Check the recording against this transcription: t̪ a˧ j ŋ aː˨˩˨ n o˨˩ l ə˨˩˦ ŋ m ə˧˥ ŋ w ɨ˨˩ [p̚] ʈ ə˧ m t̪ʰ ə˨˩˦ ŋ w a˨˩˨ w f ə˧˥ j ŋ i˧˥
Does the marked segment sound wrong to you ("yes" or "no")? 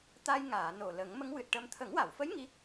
yes